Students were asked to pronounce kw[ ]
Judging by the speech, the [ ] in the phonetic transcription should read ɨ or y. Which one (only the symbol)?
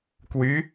y